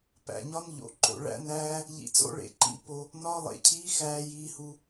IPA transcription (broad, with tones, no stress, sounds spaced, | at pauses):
p æ̰˨ ɲ ɒ˦ n ʎ o̰˧ ǃ o̰˧ ɭ æ̰˦ n æː˦ | ʎ ḭ˧ t͡s o̰˦ ɭ ḛ˨ ǃ ḭ˧ p o˧ | n ɒ˦ lˠ ḛ˧ cʰ iː˦ x æː˧ j iː˧ h u˧